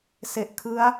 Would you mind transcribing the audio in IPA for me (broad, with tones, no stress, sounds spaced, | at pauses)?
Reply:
s e˨˩ ʔ kʰ ɯ˦˥ a̯